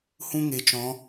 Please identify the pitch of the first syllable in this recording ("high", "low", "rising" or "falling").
high